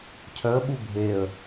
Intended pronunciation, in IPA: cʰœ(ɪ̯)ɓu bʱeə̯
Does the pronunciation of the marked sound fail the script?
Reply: yes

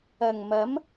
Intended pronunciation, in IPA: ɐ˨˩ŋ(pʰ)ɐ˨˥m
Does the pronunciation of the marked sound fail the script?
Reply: yes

